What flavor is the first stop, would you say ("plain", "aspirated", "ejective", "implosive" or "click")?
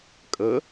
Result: ejective